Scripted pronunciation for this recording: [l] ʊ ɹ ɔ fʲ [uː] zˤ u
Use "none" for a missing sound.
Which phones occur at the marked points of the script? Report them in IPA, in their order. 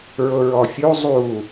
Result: ɹ, u

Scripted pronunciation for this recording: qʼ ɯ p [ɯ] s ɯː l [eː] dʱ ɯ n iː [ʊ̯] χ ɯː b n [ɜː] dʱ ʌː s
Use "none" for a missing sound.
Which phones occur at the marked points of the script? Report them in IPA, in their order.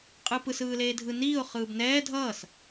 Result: ɯ, eː, ʊ̯, ɛː

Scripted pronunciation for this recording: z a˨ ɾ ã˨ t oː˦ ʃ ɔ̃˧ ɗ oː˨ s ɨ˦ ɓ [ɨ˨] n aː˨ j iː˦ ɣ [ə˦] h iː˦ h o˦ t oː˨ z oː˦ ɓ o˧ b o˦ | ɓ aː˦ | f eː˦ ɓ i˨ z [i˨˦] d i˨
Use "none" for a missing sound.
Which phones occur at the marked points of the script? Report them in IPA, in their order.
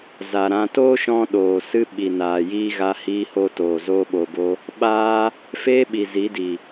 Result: i˨, a˦, i˨˦

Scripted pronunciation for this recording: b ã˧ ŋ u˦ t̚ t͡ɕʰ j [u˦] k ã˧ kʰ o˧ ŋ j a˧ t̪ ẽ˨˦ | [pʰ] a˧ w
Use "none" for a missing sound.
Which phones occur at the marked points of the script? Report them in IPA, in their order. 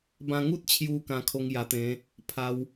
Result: u˧, pʰ

